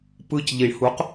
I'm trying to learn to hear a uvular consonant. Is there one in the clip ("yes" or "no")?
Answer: yes